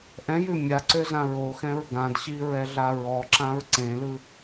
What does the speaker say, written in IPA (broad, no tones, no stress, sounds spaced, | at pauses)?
ʔ ɛ̃ j ʉ mʲ a ǀ ø z ã ɹ o x ɛ̃ ɹ ɡ ã d ɕ i ɹ ɛ ɮ a ɹ ɔ ǁ ã ɹ ǀ ẽ l ɯ